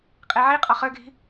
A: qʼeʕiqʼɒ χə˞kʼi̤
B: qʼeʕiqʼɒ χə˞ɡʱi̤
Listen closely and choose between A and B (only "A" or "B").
B